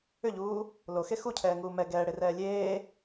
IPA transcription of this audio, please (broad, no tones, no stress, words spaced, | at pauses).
ʏʎuː | loxe xucʰɛːŋuː mɛ ɡɛːɽerɛː lʲeː